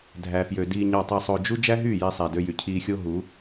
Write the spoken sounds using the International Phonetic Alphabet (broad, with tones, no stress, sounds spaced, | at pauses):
dʱ æ˨ f j ø˨ d iː˨ ɲ ɑ˨ tˤ i˨ sˤ o˨ d͡ʒ u˦ d͡ʒ æ˦ ɦ yː˦˨ j i˧ sˤ æ˨ d ø˧ j y˨ cʰ iː˧ xʲ o˦ ɦ u˨˦